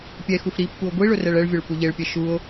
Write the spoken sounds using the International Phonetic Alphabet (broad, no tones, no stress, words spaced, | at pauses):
pʲɛ xufɾipːuo̯ ɡʷiɭʊ rɛɭɛɭvʲʊɭ puʎeɭpʲɛ ʃuo̯